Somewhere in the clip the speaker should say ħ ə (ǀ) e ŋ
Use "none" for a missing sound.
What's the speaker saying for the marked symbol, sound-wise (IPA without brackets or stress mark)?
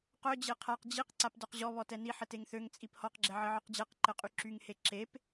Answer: t